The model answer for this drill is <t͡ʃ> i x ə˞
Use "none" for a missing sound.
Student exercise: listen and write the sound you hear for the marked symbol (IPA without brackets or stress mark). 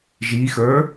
ʒ